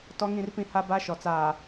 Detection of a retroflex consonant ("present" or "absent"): absent